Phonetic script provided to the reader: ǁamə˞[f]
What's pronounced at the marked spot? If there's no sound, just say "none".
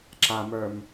m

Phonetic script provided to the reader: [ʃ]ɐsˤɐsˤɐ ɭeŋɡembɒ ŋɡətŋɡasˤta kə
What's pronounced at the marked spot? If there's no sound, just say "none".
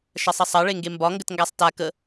ʃ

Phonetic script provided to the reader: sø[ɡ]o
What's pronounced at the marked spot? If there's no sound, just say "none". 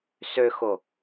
x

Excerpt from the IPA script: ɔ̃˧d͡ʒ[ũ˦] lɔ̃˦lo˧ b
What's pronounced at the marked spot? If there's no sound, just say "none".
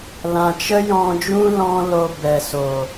ũ˦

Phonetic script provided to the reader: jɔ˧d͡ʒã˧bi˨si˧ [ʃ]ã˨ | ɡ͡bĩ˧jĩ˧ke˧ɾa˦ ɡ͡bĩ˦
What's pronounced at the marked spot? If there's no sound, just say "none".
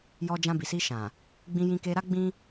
ʃ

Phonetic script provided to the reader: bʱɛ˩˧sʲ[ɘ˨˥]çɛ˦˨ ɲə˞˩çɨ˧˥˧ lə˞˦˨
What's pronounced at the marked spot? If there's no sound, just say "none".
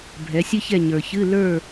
ɘ˥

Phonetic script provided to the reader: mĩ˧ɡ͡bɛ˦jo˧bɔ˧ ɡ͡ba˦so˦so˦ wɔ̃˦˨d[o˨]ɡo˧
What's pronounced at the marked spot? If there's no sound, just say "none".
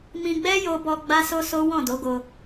o˨˦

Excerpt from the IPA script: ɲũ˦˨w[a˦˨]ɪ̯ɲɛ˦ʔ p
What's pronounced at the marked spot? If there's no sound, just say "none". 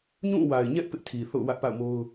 a˨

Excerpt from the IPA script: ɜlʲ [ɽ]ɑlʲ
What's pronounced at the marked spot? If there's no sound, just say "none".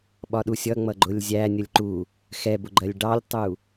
ɖ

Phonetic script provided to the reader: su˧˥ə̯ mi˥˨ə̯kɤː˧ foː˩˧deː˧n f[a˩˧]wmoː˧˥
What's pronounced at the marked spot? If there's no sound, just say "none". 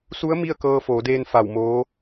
a˧˩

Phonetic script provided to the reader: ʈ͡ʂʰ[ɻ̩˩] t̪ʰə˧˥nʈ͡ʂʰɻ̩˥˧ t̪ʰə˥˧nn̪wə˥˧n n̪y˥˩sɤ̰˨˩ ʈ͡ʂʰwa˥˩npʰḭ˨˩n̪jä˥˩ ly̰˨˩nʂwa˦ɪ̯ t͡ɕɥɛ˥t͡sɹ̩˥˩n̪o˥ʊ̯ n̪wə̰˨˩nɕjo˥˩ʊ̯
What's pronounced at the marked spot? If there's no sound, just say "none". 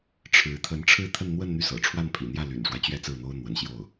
ɻ̩˧˥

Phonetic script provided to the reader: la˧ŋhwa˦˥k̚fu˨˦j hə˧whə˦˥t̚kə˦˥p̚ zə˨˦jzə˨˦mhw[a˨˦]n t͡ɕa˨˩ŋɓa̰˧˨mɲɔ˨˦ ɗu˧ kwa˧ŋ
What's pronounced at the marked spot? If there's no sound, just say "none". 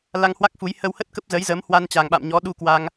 a˧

